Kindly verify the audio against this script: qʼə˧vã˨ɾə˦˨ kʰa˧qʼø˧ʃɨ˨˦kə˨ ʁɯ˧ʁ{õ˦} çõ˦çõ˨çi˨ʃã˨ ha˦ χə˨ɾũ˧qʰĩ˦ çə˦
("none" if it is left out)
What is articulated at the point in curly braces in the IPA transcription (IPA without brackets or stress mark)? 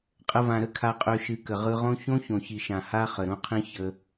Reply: õ˦